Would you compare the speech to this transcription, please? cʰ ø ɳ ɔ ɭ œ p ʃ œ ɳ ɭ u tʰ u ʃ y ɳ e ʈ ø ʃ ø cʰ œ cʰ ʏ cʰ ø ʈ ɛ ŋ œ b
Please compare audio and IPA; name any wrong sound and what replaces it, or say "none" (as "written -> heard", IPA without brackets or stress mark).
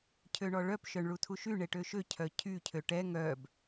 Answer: ʏ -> y